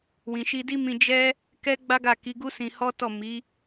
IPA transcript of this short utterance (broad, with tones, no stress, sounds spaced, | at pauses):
w ĩ˨ ʃ i˧ d i˦ m ĩ˧ d͡ʒ ɛ˦ | k ɛ˦ ɡ͡b a˦ ɡ a˦˨ k i˨˦ ɡ u˦ s ĩ˧ h ɔ˦ t ɔ˦˨ m i˨˦